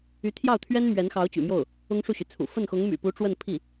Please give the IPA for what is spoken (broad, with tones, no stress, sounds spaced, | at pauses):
y˧˥ t̪ʰ j ɑ˥˩ ʊ̯ t̪ʰ ɥ ɛ˥ n m ɥ ɛ˧˥ n x ɑ˧˥ ʊ̯ t͡ɕ y̰˨˩ m j o˥˩ ʊ̯ | ʊ˥ ŋ ʂ u˥˩ ɕ y˩ t͡sʰ ṵ˨˩ f ə˥˩ n x ʊ˧˥ ŋ m y̰˨˩ p u˧˥ ʈ͡ʂ w ə˥˧ n pʰ i˥˩